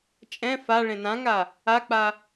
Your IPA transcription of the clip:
t͡ʃʼɛ̃ faɭẽ nãŋa | ak͡pa

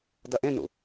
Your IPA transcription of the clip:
dɐʔẽnṵ

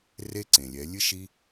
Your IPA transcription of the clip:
re˦ ǀẽ˨lʲɛ˨˦ lʲɨ˦ʃi˦

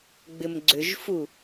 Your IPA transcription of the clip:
ɡ͡bɪmɡ͡ǀʏʒfu

